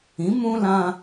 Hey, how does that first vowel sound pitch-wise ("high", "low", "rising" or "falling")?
rising